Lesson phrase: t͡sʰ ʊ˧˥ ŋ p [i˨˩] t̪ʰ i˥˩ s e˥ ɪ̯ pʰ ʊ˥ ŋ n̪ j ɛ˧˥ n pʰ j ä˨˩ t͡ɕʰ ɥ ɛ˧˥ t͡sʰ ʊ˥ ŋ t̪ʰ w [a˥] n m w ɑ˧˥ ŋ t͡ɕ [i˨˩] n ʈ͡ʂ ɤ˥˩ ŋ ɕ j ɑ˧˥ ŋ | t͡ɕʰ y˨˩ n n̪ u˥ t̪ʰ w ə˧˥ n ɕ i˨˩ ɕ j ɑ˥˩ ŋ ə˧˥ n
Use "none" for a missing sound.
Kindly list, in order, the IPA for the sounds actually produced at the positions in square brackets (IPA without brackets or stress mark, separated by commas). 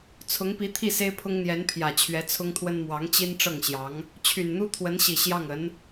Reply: i˧˥, ə˥, i˥